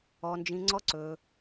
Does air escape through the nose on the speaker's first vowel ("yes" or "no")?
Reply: no